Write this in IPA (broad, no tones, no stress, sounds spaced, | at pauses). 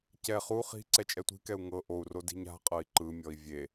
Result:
c ɛ χ u χ i̤ ǀ ɛ t͡ʃʼ ɛ tʷ i̤ k ɛ u̯ ŋ ɤ ʔ o u̯ r o d i̤ ɲ a̤ qʼ ɤ i̯ ǃ ɯ mʲ ɔ i̯ vʲ e